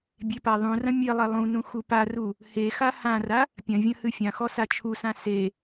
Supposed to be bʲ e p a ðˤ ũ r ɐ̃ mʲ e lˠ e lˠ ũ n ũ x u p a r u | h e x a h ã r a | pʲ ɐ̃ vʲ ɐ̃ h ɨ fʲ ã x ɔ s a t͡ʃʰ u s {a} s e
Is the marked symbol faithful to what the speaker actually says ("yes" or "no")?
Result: no